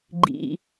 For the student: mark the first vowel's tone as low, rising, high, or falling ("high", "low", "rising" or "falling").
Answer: low